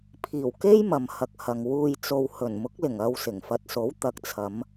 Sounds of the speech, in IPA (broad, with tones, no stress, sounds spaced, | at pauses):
pʰ iː˨˩ w k e˥ j m ɐ˨ m h ɐ˧ k̚ h ɐ˨ ŋ w uː˨ j t͡s o˨ w h ɵ˨˩ n m ʊ˨˥ k̚ l ɪ˨˩ ŋ ɐ˧ w s ɪ˨˩ ŋ f ɐ˨ t̚ s o˨˥ w t̪ ɐ˨ k̚ t͡sʰ ɐ˨˧ m